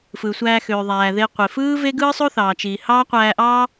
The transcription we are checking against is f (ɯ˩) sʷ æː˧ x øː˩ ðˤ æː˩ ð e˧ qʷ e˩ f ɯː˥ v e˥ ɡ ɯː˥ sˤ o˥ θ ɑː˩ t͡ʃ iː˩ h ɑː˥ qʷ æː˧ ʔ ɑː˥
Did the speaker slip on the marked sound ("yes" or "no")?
no